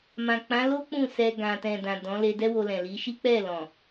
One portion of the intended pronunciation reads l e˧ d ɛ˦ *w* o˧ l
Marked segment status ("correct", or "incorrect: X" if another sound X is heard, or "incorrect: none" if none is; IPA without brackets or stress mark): correct